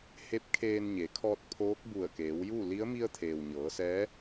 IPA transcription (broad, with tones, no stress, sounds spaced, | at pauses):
h e˧˥ p̚ kʰ eː˧ n ɲ e˩˧ kʰ ɔː˧ t̚ pʰ oː˧˥ k̚ b u˧˩ ə̯ k eː˩˧ w j uː˥˨ l i˧˥ ə̯ m i˧ ə̯ t̪ʰ eː˩ w ɲ ɤː˩˧ s ɛː˧˥